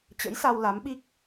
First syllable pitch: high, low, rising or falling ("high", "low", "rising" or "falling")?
rising